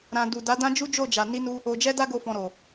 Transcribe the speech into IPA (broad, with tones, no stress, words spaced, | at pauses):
ɾã˧ du˨da˨˦ dã˦d͡ʒu˦d͡ʒo˦˨d͡ʒa˨ ni˧nu˧ | o˧ d͡ʒɛ˦da˦ɡo˧fɔ̃˨ ɾo˨